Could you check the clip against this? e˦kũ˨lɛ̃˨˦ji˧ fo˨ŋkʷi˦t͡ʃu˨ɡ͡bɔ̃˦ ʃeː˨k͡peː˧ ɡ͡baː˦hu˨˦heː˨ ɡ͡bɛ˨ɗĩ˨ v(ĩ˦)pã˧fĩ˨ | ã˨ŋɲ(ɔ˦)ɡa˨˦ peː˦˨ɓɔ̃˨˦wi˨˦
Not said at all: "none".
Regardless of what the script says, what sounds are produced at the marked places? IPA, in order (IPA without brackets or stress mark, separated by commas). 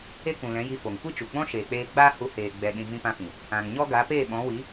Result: ĩ˧, ɔ˦